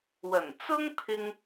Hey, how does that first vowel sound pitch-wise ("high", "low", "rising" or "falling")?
low